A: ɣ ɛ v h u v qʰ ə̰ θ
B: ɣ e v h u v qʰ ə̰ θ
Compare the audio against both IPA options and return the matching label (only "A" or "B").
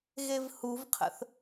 B